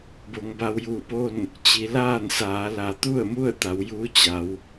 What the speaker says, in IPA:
b o˩˧ ŋ b a˧ w j uː˧˩ p o˥˨ n | t͡ɕ i˩˧ l aː˥˨ n s aː˩˧ l a˩˧ t̪ u˥˨ ə̯ m u˥˨ ə̯ t̪ a˩˧ w j uː˧˥ t͡ɕ a˩˧ w

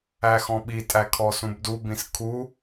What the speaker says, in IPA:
æ x ɔ̃ ɓ i tʼ æ kʰ ɔ s ũ b d u b ĩ s kʰ u

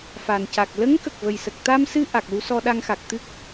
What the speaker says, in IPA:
f a˨˩ n c a˨˩ k̚ l ə˧˥ ŋ k ə˨˩ k̚ v ə˨˩ j s ə˨˩ k̚ t̪ a˧ m s ɨ˧ ʔ a˨˩ k̚ l u˧˥ s ɔ˧ ɗ a˧ ŋ x a˨˩ k̚ t̪ ɨ˦˥ k̚

